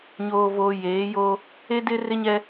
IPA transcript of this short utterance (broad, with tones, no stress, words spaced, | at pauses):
ɲoː˨voː˨ jeː˨˦joː˦ | e˦dɪ˦ rɪ˦ɲɛ˦